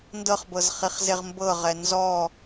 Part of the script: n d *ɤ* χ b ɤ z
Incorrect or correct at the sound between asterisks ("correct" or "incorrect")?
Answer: correct